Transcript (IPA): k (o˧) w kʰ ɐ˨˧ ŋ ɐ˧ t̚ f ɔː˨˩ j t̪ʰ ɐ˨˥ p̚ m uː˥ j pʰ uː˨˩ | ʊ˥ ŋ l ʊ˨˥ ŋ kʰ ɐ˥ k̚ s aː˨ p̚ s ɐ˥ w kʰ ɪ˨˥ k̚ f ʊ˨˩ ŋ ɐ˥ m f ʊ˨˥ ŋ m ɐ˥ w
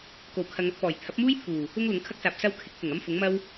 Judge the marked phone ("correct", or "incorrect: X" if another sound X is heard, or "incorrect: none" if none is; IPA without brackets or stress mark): incorrect: o˨˩